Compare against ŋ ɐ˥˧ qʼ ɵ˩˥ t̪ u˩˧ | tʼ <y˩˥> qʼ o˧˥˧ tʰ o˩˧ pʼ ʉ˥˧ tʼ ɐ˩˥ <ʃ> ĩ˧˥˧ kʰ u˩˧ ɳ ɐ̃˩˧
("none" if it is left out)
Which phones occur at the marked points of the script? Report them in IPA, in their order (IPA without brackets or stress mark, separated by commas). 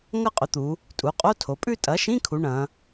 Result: u˩˥, ʃ